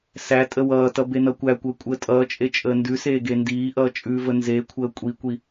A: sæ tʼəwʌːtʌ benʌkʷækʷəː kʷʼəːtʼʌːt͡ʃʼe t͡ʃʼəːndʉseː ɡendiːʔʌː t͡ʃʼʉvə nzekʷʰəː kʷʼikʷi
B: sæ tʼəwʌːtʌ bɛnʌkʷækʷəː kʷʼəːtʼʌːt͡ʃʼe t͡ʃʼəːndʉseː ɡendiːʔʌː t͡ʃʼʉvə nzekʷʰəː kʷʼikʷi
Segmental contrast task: A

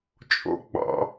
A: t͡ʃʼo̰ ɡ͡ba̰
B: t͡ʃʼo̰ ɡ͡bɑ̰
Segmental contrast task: B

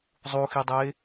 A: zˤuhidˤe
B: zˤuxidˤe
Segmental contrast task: B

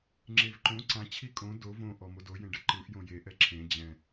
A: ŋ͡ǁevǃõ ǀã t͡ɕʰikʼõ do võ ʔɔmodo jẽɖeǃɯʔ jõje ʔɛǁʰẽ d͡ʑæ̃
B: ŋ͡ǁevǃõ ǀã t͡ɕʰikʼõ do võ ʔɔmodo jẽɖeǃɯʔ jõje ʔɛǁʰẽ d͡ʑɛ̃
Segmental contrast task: B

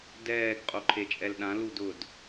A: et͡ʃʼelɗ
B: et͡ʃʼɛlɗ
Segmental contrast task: B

